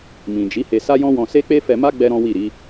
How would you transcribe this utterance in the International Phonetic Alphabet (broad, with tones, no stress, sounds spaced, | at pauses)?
m ĩ˨ d͡ʒ i˨˦ h e˧ s a˦ j ɔ̃˦ w ɔ̃˧ s e˦ k͡p e˦ f ɛ˧ m a˦ ɡ͡b ɛ˦ ɾ ɔ̃˦ w i˦˨ ɾ i˨˦